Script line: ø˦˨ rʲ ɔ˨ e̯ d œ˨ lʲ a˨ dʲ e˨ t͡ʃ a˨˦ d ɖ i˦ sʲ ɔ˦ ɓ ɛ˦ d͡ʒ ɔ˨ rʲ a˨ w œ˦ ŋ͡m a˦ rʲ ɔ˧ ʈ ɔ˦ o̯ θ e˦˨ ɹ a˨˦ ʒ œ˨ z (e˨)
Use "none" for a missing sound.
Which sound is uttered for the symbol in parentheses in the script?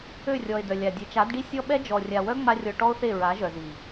i˨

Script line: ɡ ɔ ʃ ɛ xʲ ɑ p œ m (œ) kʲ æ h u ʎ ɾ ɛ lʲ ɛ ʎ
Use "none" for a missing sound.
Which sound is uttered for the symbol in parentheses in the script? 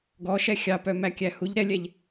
æ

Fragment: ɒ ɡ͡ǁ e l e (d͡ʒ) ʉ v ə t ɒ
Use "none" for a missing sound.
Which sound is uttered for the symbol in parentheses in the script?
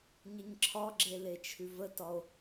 t͡ʃʰ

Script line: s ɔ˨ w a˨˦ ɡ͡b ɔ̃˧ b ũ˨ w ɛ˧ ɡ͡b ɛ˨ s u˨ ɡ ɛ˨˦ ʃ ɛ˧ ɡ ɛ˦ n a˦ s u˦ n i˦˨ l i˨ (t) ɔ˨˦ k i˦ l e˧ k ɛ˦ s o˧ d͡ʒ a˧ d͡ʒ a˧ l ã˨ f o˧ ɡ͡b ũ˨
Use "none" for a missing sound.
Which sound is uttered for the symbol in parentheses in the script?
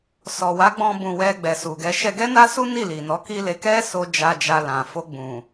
n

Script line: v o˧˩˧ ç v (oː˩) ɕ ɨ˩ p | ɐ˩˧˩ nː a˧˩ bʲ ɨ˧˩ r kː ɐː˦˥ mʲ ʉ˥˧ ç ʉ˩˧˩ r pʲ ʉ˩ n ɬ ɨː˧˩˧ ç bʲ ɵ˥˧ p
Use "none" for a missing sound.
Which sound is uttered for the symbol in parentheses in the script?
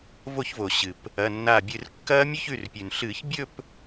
o˩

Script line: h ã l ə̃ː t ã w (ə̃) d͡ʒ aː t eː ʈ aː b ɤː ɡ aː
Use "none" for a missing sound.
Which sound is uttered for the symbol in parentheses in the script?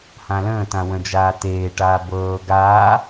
ə̃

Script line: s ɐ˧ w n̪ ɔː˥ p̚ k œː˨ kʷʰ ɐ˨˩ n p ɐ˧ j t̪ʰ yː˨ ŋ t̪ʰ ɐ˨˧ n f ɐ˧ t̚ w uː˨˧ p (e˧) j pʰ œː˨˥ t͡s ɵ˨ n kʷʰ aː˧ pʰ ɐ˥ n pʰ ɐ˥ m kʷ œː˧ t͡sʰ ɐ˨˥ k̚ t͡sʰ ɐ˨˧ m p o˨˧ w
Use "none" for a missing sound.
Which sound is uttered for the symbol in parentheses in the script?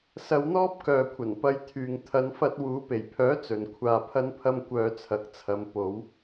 e˨˩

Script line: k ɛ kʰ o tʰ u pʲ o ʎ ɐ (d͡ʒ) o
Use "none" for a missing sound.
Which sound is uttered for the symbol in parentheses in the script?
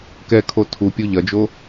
d͡ʒ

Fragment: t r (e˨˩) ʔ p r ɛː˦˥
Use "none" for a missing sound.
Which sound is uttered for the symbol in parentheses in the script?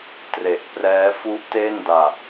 e˨˩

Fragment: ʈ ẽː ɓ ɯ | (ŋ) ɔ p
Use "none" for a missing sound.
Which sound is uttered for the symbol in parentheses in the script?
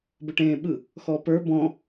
x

